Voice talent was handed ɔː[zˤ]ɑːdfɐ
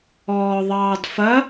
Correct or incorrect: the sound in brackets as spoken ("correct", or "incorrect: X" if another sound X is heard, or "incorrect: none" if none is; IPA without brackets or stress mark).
incorrect: ðˤ